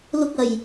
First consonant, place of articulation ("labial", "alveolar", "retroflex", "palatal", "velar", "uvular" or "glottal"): alveolar